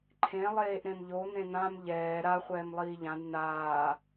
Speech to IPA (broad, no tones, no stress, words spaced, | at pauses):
ǃʰẽ lˠeːʔɾẽmʎo n̪ẽn̪ãm ʎɛː ɾa χʷɛːmlˠiːʎãd naː